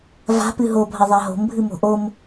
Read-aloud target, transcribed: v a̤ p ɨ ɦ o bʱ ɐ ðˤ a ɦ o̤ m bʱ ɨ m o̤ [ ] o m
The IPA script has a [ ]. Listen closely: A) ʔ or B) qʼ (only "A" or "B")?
A